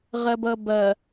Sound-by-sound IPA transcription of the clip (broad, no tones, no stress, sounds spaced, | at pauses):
ʁ ɐ b ʌ b ɐ